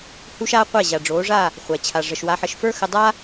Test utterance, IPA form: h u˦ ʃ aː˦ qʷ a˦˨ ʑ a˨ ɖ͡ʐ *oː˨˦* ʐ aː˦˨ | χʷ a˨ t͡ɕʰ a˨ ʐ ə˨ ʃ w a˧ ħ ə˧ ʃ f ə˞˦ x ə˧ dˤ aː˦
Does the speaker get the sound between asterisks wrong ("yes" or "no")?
no